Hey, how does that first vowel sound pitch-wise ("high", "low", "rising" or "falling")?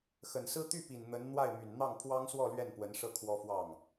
low